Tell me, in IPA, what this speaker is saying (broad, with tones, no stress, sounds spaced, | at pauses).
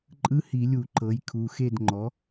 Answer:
ǃʼ ɯ˧˥˧ h i˧˩˧ lʲ u˧˩˧ ǃ ɤ˩˥ j kʰ u˩˧˩ x e˥˨ d ŋ͡ǃ ɔ˩˥